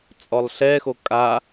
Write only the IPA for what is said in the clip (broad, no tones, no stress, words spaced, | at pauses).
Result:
t͡sʼɔlˠɬɛxo kʼa